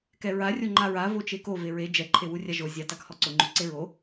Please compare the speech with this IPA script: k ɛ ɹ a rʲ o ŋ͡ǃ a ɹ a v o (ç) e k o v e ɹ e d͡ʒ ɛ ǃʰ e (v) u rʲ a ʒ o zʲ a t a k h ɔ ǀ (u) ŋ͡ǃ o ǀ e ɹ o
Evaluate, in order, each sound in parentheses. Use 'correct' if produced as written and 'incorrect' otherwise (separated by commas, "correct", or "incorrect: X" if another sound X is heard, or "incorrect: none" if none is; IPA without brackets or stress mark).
incorrect: t͡ʃ, incorrect: w, incorrect: ʊ